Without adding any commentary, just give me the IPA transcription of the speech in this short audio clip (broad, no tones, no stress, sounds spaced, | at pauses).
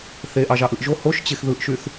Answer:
θ e ʔ ɑ ʒ ɑ ʔ ɯ ʔ ʒ o h o ʃ t͡ɕ e x ð ɯ ʔ ʃ y θ